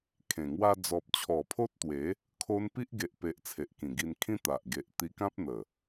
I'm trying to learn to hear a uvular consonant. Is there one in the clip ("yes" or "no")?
no